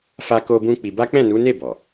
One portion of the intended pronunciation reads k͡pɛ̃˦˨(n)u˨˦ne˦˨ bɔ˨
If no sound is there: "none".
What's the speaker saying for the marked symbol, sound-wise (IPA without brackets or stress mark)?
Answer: n